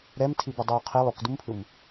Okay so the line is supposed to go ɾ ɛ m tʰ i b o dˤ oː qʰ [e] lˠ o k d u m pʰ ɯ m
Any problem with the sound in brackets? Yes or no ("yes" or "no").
yes